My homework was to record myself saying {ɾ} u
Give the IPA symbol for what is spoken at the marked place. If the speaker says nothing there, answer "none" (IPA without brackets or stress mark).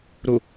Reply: ɾ